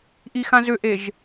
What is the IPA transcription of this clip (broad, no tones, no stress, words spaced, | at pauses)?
ʔixãzʏʔeʒ